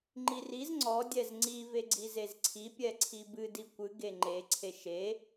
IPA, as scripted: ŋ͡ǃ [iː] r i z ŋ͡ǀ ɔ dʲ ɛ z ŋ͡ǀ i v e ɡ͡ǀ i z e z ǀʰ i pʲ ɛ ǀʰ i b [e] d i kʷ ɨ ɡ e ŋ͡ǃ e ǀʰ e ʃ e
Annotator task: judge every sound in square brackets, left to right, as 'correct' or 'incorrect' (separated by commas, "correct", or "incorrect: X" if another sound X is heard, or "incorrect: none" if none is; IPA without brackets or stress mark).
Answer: incorrect: i, incorrect: ɨ